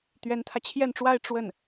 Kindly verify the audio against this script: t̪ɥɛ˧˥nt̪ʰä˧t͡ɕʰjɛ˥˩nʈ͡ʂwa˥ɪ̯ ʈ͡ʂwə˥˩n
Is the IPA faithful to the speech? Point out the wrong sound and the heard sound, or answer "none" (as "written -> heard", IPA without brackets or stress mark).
none